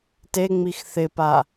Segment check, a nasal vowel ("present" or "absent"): absent